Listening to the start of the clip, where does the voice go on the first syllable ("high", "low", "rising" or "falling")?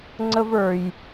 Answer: high